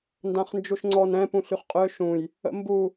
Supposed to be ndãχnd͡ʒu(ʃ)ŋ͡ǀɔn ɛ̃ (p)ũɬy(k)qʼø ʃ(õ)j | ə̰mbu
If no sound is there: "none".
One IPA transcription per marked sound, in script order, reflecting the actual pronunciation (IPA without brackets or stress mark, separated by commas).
ʃ, p, χ, ũ